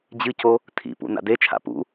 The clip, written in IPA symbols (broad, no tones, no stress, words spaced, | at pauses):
d͡ʑɨco | tʰḭpṵ na̰det͡ʃʰa̰ pṵ